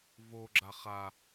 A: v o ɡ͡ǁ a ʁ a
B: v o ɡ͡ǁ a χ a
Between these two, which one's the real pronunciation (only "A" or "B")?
B